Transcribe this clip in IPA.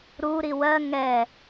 ɾ u ɾ i w ɜ ŋ ɛ

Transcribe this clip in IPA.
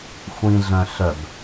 xʷ ĩ ɮ œ̃ ɬ œ b

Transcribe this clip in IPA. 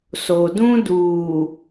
s o˨ d ũ˦ d uː˨

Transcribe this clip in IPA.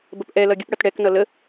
b ə p ʔ ɛ l ʌ ɡʲ ə p ɽ ʌ t ɽ ɛ k n ʌ l ə

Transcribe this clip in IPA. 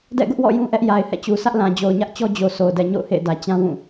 d ɛ̰˦˨ ɡ ʊ˦ ʔ w ɔ̰˦˨ j ũ˦ ʔ ɛ˦ ʔ j a˨ ɪ̯ h ɛ̰˦˨ t͡ɕ u˨ sʰ ä˦ ʔ l ã˨ d͡ʑ o˨ ʊ̯ ɲ ä˦ ʔ t͡ɕ ɔ˦ d͡ʑ o˨ sʰ o˨ ʊ̯ d ɛ˨ ɲ o̰˦˨ ʊ̯ h ḛ˦˨ ɪ̯ d ä˨ t͡ɕ ã˦ w ũ˦˨

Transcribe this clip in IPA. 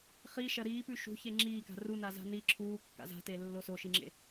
χ i ʃ ɐ ɾ iː p ʉ ʃ ṳ ç e ŋ͡ǁ iː k a̤ r u n a z a̤ n i ǁʰ uː kː a̰ z a̤ t e lː o s o ʃ i ŋ͡ǁ ḛ

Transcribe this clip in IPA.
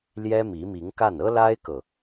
l j ɛ˥ m i˧˥ m i˧˥ ŋ k a˥˩ n ɤ˥ l a˥ ɪ̯ k ɤ˨

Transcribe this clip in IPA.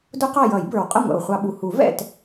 d ʊ˥ q ɑ˥˨ j ʌ˨˩˦ j b ə˞˨˩ w qʼ ʌ˥˨ ŋʷ ɛ̰˨˩ w χʷ ɑ˧ ɓ u˨˩ h u˨˩˦ v ɛ̰˥˨ t

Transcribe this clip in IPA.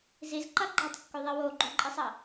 z i z ǃ ɐ ɡ͡ǃ e tˤ kː ʉ ðˤ i w o ɡ͡ǃ o ǃʼ i sˤ ɐ

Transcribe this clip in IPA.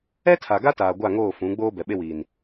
ɛ˦ tʰ a˨ ɡ a˦ t aː˨ ɡʷ a˦˨ ŋ oː˦˨ f ũ˨˦ ɡ͡b oː˦ b ɛ˨ ɓ e˦ w iː˨ n

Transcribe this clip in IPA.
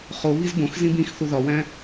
χ o β i z b õ x z ĩ b ĩ x θ u ð ɒ w æ̃

